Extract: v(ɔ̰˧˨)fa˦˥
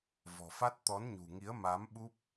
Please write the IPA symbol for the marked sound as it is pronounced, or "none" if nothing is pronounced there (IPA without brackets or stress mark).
ɔ̤˨˩